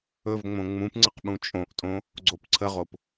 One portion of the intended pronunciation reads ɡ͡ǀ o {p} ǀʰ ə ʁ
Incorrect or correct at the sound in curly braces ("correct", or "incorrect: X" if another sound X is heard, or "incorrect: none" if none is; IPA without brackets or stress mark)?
correct